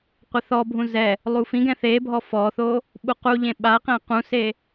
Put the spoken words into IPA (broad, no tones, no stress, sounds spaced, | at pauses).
qʷ ɛ θ ɔ bʱ ũ z ɛ | lˠ u f ĩ ɡ ɛ̃ θ e bʱ ɔ f ɔ θ o | ɓ u q u ʎ ẽ ɓ a q ɛ̃ q ũ s e